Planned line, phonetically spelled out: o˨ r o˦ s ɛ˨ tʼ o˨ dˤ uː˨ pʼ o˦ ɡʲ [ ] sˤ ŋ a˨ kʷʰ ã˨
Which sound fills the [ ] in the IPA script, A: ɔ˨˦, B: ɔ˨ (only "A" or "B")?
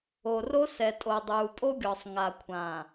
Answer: B